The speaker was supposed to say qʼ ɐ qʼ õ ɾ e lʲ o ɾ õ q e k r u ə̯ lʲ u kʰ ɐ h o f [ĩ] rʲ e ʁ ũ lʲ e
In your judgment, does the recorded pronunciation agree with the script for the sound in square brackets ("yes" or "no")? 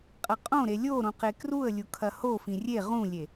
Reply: yes